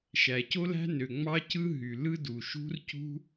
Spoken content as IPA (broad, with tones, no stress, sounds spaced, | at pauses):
ʃ æ˩ c o˥ l æ̤˥ n ø˩ ŋ͡m ɑ˥ c ɯ˥ ɦ y˩ l ɯ˥ d u˩ ʃ ṳ˥ r c ṳ˥